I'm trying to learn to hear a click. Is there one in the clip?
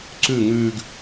yes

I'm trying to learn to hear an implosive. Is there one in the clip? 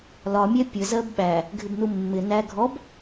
yes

